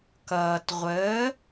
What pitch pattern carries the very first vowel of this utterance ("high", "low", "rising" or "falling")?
low